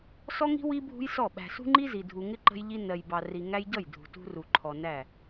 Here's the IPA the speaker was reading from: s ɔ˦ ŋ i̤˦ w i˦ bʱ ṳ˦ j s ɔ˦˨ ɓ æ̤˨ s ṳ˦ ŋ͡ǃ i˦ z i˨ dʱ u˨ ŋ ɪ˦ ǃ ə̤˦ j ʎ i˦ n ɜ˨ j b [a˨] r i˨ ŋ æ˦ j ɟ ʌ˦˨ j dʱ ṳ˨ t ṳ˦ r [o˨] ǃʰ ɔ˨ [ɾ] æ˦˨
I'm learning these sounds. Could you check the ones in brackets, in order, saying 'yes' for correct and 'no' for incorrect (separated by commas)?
no, no, no